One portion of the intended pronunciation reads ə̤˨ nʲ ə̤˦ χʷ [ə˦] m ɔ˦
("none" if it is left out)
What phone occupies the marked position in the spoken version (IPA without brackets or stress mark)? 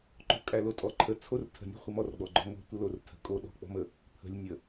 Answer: ə˦